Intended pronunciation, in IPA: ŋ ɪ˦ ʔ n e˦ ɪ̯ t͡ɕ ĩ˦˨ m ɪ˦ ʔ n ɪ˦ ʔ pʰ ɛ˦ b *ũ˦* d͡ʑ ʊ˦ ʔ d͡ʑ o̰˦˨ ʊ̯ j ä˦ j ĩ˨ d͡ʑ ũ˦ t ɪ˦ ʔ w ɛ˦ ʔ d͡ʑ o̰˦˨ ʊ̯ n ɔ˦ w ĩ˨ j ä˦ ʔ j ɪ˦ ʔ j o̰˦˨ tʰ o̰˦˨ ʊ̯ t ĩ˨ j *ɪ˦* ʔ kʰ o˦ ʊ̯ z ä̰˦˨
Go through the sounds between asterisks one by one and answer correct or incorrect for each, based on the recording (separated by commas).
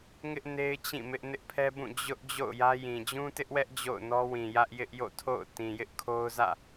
incorrect, correct